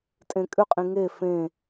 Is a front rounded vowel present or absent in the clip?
present